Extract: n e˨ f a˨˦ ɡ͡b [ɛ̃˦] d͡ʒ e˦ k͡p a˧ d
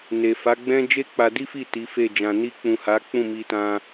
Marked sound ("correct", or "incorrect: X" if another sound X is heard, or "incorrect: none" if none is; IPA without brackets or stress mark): correct